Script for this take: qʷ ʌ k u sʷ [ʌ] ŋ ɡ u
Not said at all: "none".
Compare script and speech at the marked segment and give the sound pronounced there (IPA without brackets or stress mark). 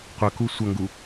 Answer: ʌ